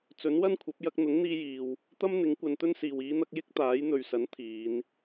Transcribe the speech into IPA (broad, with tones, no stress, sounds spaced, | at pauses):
t͡s ɵ˨˥ n w ɐ˥ n kʷʰ ɐ˨˥ p̚ j ɐ˧ k̚ n̪ ʊ˨˥ ŋ n̪ iː˧ j iː˨ w | t̪ ɐ˥ m n̪ ɪ˨˥ ŋ kʷ ɐ˨˧ n t̪ ɵ˥ n s iː˨ w iː˨˧ n̪ ɐ˧ k̚ j ɪ˥ k̚ t̪ aː˨˥ j n̪ ɵ˨ ɥ s ɐ˨˥ n t̪ʰ iː˨˧ n